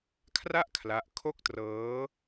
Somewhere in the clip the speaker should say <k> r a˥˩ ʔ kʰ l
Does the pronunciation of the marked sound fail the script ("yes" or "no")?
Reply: yes